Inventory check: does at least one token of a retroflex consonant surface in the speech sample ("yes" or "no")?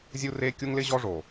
yes